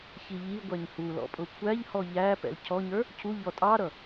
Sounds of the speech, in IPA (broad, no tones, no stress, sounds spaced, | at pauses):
ç i ʎ i ɡʷ æ ɲ h u l ɔ̰ pʼ ʊ kʷʰ æ ʎ h ɔ ʎ æ p ɛ̰ l cʰ ɔ ɲ ə˞ | cʰ u ʎ ɔ tʼ ɑ ɾ ʌ